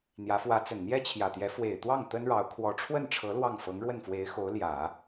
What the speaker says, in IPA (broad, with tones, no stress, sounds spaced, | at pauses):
n̪ j ä˧˥ f w ä˧˥ t͡s ə˨˩ n n̪ j ɛ˥ t͡ɕʰ j ä˨˩ t̪ j ɛ˧˥ f w e˨˩ ɪ̯ t̪ w ɑ˥˩ ŋ t̪ ə˥ n ɻ ɑ˧˥ ʊ̯ kʰ w ɔ˧˥ ʈ͡ʂʰ w ə˥˩ n ʈ͡ʂʰ ɤ˧˥ l w ɑ˥˩ ŋ f ɤ˧˥ ŋ ɻ w ə˥˩ n f w e˧˥ ɪ̯ x o˧˥ ʊ̯ l j ä˨˩˦